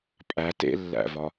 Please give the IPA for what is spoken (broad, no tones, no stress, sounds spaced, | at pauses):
pʼ æ t ḛ lː æ̰ v ɒ